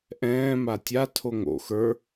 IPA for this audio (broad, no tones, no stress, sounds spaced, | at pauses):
ʔ ɛ̃ː m a tʲ a tʰ o ŋ o̰ x ə˞